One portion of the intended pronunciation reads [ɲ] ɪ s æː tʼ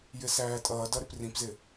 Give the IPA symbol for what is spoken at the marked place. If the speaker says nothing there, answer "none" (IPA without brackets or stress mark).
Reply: j